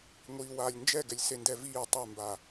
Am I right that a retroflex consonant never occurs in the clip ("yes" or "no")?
yes